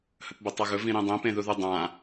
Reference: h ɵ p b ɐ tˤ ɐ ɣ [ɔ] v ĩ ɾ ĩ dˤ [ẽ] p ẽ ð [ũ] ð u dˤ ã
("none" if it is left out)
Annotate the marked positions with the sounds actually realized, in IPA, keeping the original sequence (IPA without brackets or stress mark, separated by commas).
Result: ɵ, ẽ, u